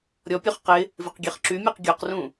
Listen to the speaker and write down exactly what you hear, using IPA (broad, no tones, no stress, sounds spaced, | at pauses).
ɾʲ ɔ pʲ ø χ q ɪ | v ɪ q ɡʲ e χ ǁ y mʲ e q ɡʲ o q r ũ